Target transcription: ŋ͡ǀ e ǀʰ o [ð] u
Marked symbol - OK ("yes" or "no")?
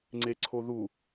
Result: yes